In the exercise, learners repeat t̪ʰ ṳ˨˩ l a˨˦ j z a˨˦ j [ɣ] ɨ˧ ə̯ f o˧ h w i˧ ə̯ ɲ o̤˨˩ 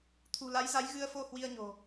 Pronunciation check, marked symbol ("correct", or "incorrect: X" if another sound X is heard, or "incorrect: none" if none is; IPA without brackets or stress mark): correct